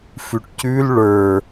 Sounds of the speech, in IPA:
f ʉ ʈ c ʉ l ɭ ə˞

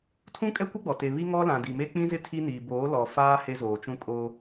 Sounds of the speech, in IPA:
tʰ ũ˦ kʼ ɛ˦ kʷ ɪ˦ ɡ͡b ɔ˨ t e˨ β i˦ ŋ ɔ˦ l ã˨ d i˨ m e˦ k͡p ĩ˦ z ɪ˦ tʰ i˦ n iː˨ b oː˨˦ l ɔ˨ f aː˦ h e˦ z oː˨ t͡ʃ ũ˦ kʼ oː˦

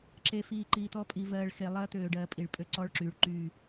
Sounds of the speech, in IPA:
ǁ e˨ f iː˨ ǃ iː˨ t̪ ɔ˦ pʼ i˨ v ɜː˨ ɭ x e˨ lˠ ɜː˦ t̪ øː˨ ɖ ɜː˨ pʼ i˨ ɭ pʼ ø˦ ǀ ɔː˦ ɭ ǁ yː˨ ɭ ǃ yː˦˨

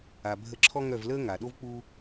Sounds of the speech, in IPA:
a˩ bʱ ə˧˩ ǁʰ ɔ˦ ŋ œ˧˩ v l əː˦ ŋ a˩ ɗ o˦ v k͡p u˦

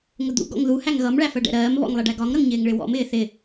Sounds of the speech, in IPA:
ŋ ʊ d̪ ṵ ɡ ɔ̰ ŋ ð u h æ ŋ ɣ ʌ m ɭ æ f ɜ ɖ ɛ̰ ɾ ɜː m β ɔ̰ ŋ lˠ ɛ ɖ æ ɡ ɒ ŋ ɾ ʌ ŋ ɲ ɪː ŋ ɭ ɪ w ɔ̰ m ɪː θ ɪ

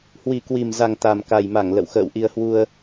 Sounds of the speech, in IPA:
h w i˨˩ k w i˨˩ m z a˨˩ ŋ t̪ a˨˩ m k a˨˩ j m a˧˩ ŋ l ə̰˧˨ w x ə̰ː˧˨ w ʔ i˧ ə̯ h w u˧ ə̯

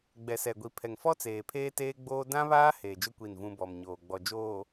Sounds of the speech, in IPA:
ɡ͡b ɛ˨ s ɛ˨ ɡʷ i˨ pʰ ɛ˨ ŋ f ɔ˦ t͡s eː˨ pʰ eː˦ t eː˦ ɡ͡b oː˦ d ã˦ β aː˦ h eː˨ d͡ʒ ʊ˦ kʷ i˦˨ n v ũ˦ b ɔ˨ m ɲ oː˨ ɡ͡b ɔ˨ d͡ʒ oː˨

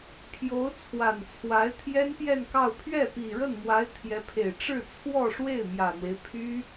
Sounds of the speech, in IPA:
pʰ j o˧˥ ʊ̯ t͡sʰ w a˨˩ n t͡sʰ w a˧˥ ɪ̯ t̪ʰ j ɛ˥ n p j ɛ˥˧ n k ɑ˥˧ ʊ̯ pʰ ɥ ɛ˥˩ p i˨˩ ɻ ə˥˩ n m w a˧˥ ɪ̯ t̪ʰ j ɛ˧˥ pʰ e˨˩ ɪ̯ ʈ͡ʂ ɻ̩˥˧ t͡sʰ w ɔ˥˧ ʂ w e˥˩ ɪ̯ m j ä˨˩ n̪ w e˦ ɪ̯ pʰ y˥

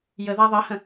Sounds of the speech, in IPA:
j ə ð a ðˤ ɐ h ə̃

